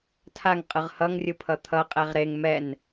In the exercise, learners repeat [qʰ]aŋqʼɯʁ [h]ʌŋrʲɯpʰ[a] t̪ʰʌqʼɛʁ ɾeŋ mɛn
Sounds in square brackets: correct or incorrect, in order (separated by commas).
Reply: incorrect, correct, incorrect